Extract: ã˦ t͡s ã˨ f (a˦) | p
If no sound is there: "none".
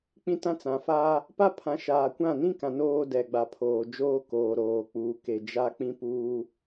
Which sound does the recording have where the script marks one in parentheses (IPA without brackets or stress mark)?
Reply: aː˦